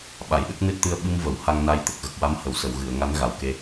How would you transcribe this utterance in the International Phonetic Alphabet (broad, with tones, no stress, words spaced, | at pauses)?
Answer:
ɓa˨˩˨jɗə˦˥k̚ nɨ˦˥t̚t̪ɨ˧ə̯ ɓɨ˧m və˨˩˨w ha˧ŋna˧jt̪ə˨˩k̚ ɣə˨˩k̚wa˧˥m hə˨˩˨wsə˨˩˨wɣɨ˨˩˨ə̯ŋa˧˥n ɣa˨˩wke˧